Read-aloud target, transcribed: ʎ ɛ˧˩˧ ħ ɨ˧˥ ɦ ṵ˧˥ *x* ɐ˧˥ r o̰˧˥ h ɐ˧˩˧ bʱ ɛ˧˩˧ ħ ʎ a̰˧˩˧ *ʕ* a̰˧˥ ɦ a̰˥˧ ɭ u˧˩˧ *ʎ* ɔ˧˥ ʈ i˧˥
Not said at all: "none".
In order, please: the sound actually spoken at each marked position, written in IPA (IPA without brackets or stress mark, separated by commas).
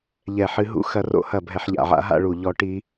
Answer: x, ʕ, ʎ